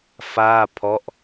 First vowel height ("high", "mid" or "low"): low